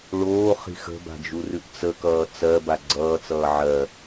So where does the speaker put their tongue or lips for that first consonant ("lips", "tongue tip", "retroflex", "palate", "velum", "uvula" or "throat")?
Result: retroflex